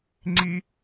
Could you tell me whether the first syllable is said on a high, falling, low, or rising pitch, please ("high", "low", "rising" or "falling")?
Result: high